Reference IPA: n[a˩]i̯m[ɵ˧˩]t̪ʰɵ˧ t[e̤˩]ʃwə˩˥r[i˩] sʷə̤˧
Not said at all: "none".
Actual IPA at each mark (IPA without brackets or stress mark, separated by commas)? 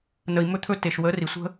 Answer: ə˩, ɵ˧, e˩, i˩